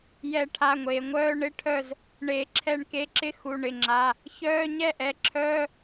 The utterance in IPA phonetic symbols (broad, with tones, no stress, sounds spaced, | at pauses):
j ɛ˨˩˦ ʈʰ a˩˧˩ ŋʷ eː˩ ŋʷ œː˧˥˧ ɳ ɪ˧˥˧ ʈʰ œ˥˩ z | ɳ eː˩ ǁʰ ɛ˨˩˦ ɳ k e˩˧˩ ǁ ɪ˧˥˧ x u˩˧˩ ɳ ɪ˩˧˩ ŋ͡ǁ a˩˧˩ | ç œː˧˥˧ ɲ ɛ˥˩ ʔ ɛ˩˧˩ ǁʰ œː˧˥˧